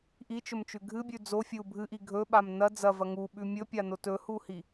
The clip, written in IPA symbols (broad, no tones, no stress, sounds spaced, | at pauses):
ʔ i t͡ʃ ɵ m t͡ʃ ʉ ɡʱ ɨ bʲ ʉ d͡z o fʲ ɨ u̯ bʱ ɨ ʔ i ɡʱ ɵ ɓ a m n ɐ d͡z ɐ v ɐ ŋ u ɓ ʉ mʲ ɵ pʲ a n o t ɵ h u h i